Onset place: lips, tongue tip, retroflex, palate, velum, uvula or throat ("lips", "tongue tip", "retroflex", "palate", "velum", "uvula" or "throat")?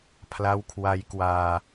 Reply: lips